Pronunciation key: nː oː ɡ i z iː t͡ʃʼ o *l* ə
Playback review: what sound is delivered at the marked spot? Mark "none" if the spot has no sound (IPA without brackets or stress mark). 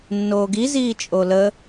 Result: l